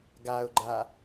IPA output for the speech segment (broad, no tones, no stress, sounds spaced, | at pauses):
ɡ a ʊ̯ ɡ͡ǃ a